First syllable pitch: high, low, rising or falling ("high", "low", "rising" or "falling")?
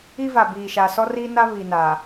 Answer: high